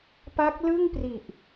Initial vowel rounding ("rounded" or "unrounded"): unrounded